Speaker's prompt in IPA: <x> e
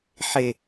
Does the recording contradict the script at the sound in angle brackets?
yes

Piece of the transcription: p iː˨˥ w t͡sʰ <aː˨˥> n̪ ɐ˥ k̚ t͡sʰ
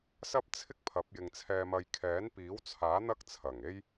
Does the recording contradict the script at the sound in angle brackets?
no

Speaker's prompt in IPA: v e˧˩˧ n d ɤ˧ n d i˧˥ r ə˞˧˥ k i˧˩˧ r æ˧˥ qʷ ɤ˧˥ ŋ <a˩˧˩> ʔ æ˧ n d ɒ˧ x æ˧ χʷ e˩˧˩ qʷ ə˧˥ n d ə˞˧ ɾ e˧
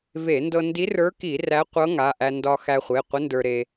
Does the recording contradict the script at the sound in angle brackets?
no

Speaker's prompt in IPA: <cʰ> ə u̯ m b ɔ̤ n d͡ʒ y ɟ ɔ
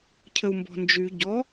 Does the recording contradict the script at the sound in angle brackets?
no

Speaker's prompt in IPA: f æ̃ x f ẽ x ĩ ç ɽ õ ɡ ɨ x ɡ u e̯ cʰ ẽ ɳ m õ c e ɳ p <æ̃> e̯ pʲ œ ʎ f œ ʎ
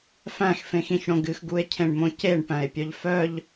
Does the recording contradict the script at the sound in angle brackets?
no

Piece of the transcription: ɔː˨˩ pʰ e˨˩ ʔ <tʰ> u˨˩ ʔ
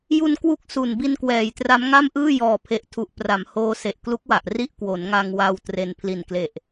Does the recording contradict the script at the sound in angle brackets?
no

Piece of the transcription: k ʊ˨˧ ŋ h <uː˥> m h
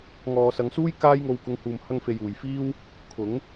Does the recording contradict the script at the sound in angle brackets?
yes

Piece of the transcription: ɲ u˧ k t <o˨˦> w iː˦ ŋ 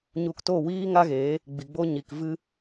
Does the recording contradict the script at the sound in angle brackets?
yes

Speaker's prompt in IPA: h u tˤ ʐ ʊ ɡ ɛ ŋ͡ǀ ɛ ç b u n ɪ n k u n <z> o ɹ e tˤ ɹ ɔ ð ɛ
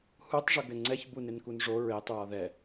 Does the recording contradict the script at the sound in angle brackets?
yes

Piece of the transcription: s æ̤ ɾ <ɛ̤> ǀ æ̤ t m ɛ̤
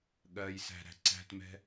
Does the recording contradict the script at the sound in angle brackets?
yes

